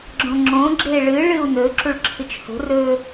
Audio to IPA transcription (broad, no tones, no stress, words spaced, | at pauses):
ɡ͡ǁõŋ͡ǁõ ɡ͡ǁeɭɨ ɭɨu̯nɵ ǁuɭǁʰɨt͡ʃho̤ rɵ